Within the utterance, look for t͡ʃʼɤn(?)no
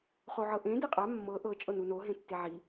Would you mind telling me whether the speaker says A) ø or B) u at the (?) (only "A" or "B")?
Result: B